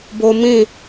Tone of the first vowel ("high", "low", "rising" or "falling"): high